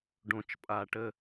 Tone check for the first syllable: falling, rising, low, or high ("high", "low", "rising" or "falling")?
low